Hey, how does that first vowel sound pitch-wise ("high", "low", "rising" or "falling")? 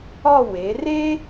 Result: falling